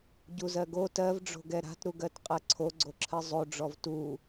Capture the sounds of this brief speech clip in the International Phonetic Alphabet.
ɟ u z ɜ ɡ o t ɜ v ɖ͡ʐ o̤ ɡ ɛ ɾ a̤ t ɾ u ɡ ɜ t qʼ ɜ ǀʰ o ɡ͡ǀ o ǁʰ ɜ zˤ o ɖ͡ʐ ɔ v t u

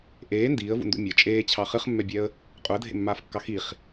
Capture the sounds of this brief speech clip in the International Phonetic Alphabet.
ʔ eː n d iː ə̯ v ṵ n d ṵ mʲ ə t͡ʃʼ eː t͡ɕʰ ɑ χ ɨ χ mː ɛ bʲ ɛ ə̯ | qʼ u ə̯ dʱ ḛ mː aː f kː ɑ x i χ

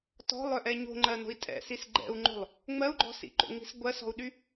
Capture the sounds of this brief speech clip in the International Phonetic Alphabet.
t ɔ̤ lˠ œ ʔ ɛ ɲ o̤ ŋ͡ǃ ɜ n o̤ i̯ tʼ ɛ̰ s i s ɡ͡ǃ ɛ̰ u̯ ŋ͡ǃ o̤ lˠ | ŋ͡m ɜ u̯ ɡ͡ǃ ɔ̤ s ḭ ǃ o̰ ŋ͡m i̤ s ɡʷ ɜ s ɔ̤ u̯ ɗ y

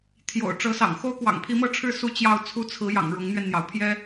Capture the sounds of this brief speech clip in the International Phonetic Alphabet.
t̪ʰ j o̰˨˩ ʊ̯ ʈ͡ʂ ɤ˧˥ s ɑ̰˨˩ ŋ x o˥ ʊ̯ k w ɑ̰˨˩ ŋ pʰ i˧˥ m ɤ˥˧ ʈ͡ʂʰ ɻ̩˥˧ s u˥˧ t͡ɕ j ɑ˥˩ ʊ̯ t͡sʰ u˥ t͡sʰ ɹ̩˧˥ j ɑ̰˨˩ ŋ ɻ ʊ˧˥ ŋ n̪ ɥ ɛ˧ n n̪ j ɑ˩ ʊ̯ pʰ j ɛ˥

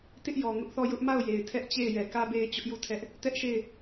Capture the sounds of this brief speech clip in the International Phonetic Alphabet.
t ɪ˦ ʔ j ɔ˨ ŋ ʊ˦ ʔ θ ɔ˦˨ j ʊ˦ ʔ m a˦˨ ʊ̯ j e˨ ɪ̯ tʰ ɛ˦ ʔ t͡ɕ e˦˨ ɪ̯ j ɛ˨ k ä˦ b e˦ ɪ̯ t͡ɕ ʊ˦ ʔ j u˦˨ tʰ ɛ˦ ʔ | t ɛ˦ ʔ ʃ e˦˨ ɪ̯

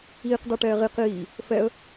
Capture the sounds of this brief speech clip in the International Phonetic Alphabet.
iː q d a ʈ ɛː ʁ i q iː | f ɛ ə̯

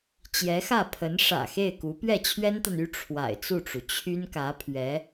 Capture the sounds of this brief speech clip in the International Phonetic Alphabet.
t͡ɕ j ɛ˧˥ x ä˥˩ pʰ ə˧˥ n ʂ ä̰˨˩ x e˥˩ ɪ̯ k u˧˥ p ɥ ɛ˥˩ t͡ɕʰ ɥ ɛ˥ n t̪ a˨ n y˥ ʈ͡ʂʰ w a̰˨˩ ɪ̯ t͡s u˥˩ ʈ͡ʂ u˩ t͡ɕʰ y˥ n k ä˧˥ pʰ ɥ ɛ˧˥

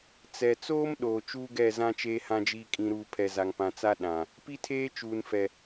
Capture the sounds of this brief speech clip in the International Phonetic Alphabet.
t͡s ɛ˨ t͡s oː˦ m ɗ oː˨ t͡ʃ uː˦ ɡ ɛ˦˨ z ã˦ t͡ʃ eː˦ h ã˦ d͡ʒ iː˦ kʼ ĩ˦ ɾ uː˦ pʰ ɛ˨ z a˨ ŋ p ã˨ t͡s a˦ ɗ ã˨ | p i˦ tʰ eː˦ t͡ʃ uː˨ n f ɛ˨

